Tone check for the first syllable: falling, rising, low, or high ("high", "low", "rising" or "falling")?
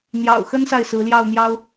low